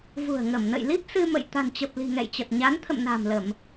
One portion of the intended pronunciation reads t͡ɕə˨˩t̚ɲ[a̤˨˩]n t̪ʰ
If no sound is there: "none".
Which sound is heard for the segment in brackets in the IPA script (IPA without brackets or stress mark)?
a˨˦